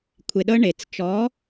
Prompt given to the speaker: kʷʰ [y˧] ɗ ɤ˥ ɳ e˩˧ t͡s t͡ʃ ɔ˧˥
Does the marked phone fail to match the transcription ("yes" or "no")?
yes